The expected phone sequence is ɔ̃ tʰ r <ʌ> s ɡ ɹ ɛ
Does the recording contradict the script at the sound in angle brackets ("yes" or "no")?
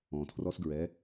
yes